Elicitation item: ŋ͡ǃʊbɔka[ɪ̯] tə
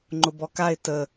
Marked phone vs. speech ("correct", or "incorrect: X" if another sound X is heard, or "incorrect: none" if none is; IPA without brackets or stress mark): correct